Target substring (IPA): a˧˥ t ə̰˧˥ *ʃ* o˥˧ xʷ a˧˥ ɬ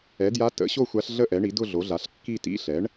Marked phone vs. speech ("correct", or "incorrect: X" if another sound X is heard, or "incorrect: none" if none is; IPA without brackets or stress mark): incorrect: ɕ